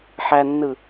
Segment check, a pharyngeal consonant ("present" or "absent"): present